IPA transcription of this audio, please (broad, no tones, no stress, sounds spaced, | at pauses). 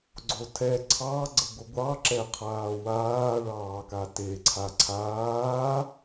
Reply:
ɡ͡ǀ o tʰ ɛ ǀʰ ɑ ɡ͡ǀ ə ɡʷ ə ɡʷ ɑ ǁ ɛ qʰ aː w aː ɭ ɑː k a t e ǀʰ a ǀʰ aː